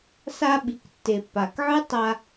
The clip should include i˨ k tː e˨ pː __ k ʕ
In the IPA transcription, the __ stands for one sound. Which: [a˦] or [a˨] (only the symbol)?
a˨